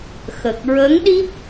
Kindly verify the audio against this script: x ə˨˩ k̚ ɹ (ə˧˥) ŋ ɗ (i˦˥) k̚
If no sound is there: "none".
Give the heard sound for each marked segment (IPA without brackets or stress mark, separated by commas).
ə˧˥, i˦˥